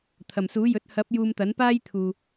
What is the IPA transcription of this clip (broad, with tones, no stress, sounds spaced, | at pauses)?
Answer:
t̪ʰ ɐ˨˩ m s uː˨˥ j ɵ˨˥ t̚ h ɐ˨˥ p̚ j uː˧ m t̪ ɐ˨˥ n p aː˥ j t̪ʰ uː˨